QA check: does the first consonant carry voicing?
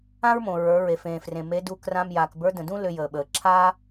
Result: yes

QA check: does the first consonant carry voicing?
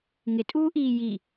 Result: yes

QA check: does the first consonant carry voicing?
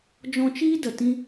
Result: yes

